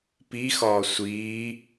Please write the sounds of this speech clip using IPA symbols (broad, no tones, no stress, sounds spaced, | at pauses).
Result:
p i x ɒː sʷ iː